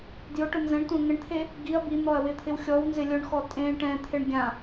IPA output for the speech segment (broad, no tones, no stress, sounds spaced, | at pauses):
d j ʊ ʈ ʊ n z ɛ̃ ɳ tʷ ɛ̃ ŋ ɪ ɳ t̪ʰ e | ɡ i ɐ̯ b i n̪ ɔ ɐ̯ w ɪ t̪ʰ ɪ w xʲ ɔ w n z ɪ lʲ ʊ ɳ x ɔ tʼ ẽ ʈ ɛ̃ t̪ʰ ɪ ɳ ɡʲ ã